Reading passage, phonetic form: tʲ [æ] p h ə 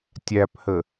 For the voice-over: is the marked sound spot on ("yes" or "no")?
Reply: yes